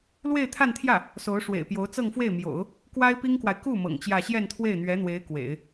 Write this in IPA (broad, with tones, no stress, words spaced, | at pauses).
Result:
lwe˥˧ɪ̯t̪ʰa˥˧nt̪ʰjä˥˩ | so˧˥ʊ̯ʂwḛ˨˩ɪ̯pjo˧˥ʊ̯ t͡sɤ˥˧ŋfwe˥˩ɪ̯mjo̰˨˩˦ʊ̯ | kwa˥ɪ̯pi˥ŋkwa˨ɪ̯ ku˥˩ mɤ̰˨˩ŋt͡ɕjä˥˧ ɕjɛ˥˧nt̪ʰwe˥˩ɪ̯n̪ɥɛ˧˥n̪we˧˥ɪ̯ kwḛ˨˩˦ɪ̯